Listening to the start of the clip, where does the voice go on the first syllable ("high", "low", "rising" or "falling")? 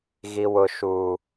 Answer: low